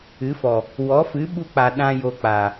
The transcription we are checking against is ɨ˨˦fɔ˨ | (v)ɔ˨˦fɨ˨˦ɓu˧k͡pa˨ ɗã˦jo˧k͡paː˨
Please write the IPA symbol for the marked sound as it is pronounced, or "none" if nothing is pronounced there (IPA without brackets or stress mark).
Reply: w